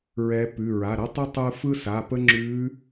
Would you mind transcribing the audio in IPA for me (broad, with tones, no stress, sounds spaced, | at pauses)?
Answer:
ɹ ɛ˧˥ p ʉ˩˧˩ ɹ a˩˧˩ ɾ ɛ˥ tˤ ʉ˥ tˤ ɯ˥ f ɯ˥ s a˩˧˩ p ə˥ ŋ͡ǁ ʉ˧˥